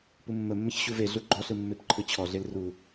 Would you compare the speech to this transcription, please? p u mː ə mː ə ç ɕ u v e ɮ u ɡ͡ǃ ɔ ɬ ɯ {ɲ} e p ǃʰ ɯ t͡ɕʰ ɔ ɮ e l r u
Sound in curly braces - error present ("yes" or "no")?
yes